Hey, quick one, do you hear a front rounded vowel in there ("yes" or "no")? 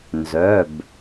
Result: yes